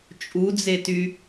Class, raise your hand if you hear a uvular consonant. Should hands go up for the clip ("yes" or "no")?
no